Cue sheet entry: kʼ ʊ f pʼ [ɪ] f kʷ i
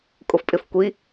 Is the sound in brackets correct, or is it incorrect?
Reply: correct